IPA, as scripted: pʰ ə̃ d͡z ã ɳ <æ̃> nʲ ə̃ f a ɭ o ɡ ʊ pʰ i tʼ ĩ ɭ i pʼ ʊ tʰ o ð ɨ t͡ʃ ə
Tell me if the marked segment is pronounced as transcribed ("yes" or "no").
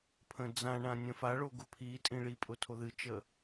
no